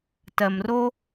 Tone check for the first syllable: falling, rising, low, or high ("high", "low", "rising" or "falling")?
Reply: low